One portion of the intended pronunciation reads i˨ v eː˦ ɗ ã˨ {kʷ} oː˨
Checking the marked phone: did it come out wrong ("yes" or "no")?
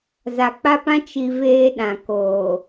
yes